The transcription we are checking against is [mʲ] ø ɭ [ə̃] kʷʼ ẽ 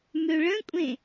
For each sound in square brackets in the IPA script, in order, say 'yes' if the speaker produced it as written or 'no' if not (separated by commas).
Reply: no, yes